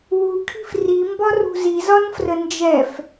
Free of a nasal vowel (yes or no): yes